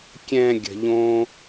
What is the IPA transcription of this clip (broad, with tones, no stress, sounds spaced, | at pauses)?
kʲ ɛ̃˨ ɡʲ ə̤˨ ʎ õ˧